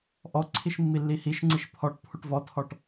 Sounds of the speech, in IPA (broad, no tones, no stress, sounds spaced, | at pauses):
ʔ ɔ ǀʰ i ʃ mː i lː i h i ʃ ŋ͡ǀ i ʃ pʰ ɔ ʈ pʰ u ʈ v ɔ tʰ ɔ ʈ